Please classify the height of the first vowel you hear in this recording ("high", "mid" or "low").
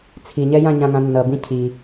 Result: high